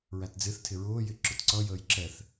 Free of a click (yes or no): no